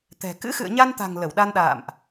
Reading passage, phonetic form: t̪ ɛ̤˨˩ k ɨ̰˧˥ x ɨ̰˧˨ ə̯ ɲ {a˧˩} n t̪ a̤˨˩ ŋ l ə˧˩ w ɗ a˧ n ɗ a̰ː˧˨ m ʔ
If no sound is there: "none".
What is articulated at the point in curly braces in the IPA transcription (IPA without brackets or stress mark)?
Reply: a˧